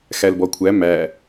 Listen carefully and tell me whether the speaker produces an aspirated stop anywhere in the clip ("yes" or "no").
yes